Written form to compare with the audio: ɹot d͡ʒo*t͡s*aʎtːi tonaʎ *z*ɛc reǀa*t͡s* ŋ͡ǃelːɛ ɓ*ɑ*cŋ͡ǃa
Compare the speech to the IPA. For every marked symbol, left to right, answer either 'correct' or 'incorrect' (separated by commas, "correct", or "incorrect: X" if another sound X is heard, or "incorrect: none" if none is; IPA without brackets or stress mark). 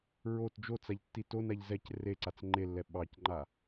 correct, correct, correct, correct